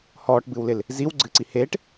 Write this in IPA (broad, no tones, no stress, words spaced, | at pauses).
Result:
hɔːʈbɨwlɪl | ziw ɡ͡ǀɨǀi heːʈ